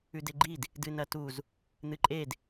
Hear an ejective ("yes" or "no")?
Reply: yes